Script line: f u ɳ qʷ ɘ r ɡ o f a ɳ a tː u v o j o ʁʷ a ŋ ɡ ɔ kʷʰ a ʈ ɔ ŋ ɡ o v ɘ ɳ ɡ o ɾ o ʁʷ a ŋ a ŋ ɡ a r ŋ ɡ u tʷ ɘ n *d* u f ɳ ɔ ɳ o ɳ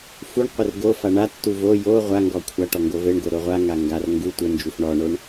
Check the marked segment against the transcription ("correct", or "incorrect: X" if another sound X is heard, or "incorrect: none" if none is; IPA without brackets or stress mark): incorrect: d͡ʒ